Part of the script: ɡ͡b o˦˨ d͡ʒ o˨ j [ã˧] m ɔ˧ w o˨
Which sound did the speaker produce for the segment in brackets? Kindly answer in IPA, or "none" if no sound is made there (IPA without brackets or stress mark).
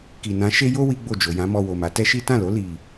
ã˨˦